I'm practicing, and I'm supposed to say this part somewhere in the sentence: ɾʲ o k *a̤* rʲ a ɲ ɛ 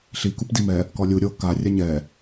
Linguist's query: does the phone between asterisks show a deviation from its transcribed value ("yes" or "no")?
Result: yes